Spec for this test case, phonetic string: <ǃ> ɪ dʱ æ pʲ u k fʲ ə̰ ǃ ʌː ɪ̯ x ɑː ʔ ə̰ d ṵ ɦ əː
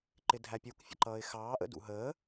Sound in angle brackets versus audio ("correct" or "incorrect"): correct